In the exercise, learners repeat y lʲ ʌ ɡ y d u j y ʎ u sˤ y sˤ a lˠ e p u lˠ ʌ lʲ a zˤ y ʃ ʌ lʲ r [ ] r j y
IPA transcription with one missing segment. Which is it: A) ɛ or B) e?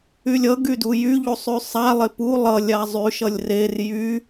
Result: B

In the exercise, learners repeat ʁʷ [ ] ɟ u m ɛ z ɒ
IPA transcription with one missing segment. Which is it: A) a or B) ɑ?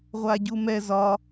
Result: A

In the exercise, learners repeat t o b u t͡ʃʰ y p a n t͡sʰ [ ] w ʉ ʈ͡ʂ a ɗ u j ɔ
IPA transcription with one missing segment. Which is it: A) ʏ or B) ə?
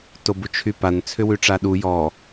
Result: A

